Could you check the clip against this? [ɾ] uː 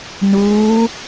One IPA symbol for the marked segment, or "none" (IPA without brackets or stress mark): n